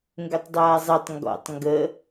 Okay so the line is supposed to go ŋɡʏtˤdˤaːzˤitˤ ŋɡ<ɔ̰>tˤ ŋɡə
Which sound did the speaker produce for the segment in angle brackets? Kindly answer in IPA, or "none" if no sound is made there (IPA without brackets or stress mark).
ɔ̰